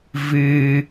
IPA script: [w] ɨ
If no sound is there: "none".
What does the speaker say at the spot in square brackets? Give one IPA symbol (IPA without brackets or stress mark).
v